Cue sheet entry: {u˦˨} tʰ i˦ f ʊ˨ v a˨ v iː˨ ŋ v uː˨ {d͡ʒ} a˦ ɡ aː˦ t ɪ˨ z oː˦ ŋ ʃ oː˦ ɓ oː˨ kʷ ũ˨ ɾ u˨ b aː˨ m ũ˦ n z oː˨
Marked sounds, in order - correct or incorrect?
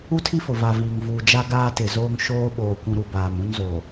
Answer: incorrect, correct

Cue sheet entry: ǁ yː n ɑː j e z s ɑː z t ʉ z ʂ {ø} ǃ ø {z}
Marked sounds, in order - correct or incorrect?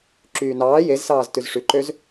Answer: incorrect, correct

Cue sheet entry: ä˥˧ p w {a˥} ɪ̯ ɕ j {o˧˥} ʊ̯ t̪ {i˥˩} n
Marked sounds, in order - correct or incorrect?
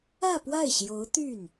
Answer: incorrect, correct, incorrect

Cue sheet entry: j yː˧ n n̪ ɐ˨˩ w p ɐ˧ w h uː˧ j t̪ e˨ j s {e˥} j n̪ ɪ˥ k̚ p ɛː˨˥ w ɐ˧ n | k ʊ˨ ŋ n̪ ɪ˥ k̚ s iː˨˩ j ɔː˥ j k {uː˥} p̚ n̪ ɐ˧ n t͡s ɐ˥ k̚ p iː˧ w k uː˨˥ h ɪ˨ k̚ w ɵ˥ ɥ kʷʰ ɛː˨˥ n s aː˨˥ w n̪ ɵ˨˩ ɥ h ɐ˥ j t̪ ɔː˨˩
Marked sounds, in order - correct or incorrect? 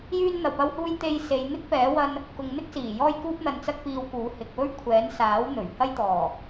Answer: incorrect, correct

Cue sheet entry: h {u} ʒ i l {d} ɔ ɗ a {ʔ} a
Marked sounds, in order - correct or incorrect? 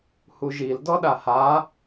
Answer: correct, correct, incorrect

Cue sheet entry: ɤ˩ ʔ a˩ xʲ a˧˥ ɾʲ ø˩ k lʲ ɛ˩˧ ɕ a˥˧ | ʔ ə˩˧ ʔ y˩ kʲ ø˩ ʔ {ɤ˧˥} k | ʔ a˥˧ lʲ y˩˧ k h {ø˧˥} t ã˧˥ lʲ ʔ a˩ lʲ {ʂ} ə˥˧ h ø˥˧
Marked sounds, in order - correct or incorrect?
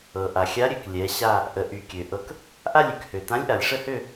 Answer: correct, incorrect, correct

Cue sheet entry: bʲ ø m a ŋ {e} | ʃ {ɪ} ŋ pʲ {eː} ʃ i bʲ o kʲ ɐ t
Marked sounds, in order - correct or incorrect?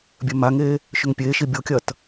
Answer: incorrect, incorrect, correct

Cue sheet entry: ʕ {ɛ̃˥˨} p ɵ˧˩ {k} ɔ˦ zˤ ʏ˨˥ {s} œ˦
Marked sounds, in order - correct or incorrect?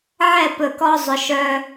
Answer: incorrect, correct, incorrect

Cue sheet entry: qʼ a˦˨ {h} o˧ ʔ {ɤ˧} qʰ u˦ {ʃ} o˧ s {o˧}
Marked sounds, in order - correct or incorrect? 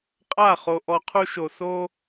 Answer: incorrect, incorrect, correct, incorrect

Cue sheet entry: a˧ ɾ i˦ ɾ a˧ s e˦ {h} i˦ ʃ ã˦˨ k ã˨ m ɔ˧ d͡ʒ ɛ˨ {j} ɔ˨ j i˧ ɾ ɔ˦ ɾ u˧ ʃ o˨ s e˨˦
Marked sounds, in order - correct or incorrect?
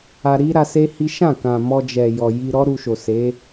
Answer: correct, correct

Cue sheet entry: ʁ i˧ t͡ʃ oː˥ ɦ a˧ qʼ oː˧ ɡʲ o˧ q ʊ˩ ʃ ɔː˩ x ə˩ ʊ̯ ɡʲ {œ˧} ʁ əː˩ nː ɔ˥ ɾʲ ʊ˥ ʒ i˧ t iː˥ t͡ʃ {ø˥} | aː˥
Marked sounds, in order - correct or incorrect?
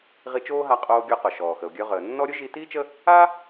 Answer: correct, incorrect

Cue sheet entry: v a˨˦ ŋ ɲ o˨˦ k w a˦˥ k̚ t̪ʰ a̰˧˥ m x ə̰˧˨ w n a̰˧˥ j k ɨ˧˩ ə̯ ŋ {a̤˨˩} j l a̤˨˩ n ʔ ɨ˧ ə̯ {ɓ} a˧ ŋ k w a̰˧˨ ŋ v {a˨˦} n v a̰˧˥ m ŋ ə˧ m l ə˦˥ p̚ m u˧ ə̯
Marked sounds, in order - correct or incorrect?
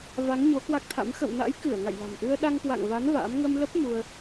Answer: incorrect, incorrect, correct

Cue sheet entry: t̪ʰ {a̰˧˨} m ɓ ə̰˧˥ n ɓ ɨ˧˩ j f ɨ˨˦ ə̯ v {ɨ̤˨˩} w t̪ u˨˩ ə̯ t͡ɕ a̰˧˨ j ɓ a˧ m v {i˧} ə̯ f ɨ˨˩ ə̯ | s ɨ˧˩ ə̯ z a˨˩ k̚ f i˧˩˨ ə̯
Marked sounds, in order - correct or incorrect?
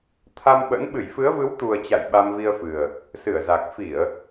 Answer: incorrect, incorrect, correct

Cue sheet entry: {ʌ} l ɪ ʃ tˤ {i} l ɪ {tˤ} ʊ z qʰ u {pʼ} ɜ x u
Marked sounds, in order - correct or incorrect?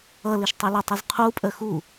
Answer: correct, incorrect, correct, correct

